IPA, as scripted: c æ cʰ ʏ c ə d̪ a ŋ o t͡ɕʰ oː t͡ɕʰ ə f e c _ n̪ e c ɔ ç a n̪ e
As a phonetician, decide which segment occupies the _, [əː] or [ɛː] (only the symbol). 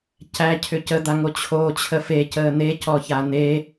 əː